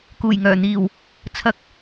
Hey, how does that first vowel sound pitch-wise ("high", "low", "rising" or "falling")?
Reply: low